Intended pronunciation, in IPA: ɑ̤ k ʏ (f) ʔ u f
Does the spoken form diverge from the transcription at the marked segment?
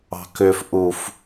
no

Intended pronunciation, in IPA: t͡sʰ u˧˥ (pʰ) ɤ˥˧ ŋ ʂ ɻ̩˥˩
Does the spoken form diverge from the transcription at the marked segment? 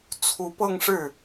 yes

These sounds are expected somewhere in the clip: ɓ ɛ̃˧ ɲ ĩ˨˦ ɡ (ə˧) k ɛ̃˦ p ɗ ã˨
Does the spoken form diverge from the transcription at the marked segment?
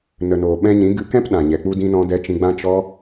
yes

